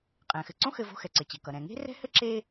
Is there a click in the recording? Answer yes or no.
yes